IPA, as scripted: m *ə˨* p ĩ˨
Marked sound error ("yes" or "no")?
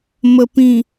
no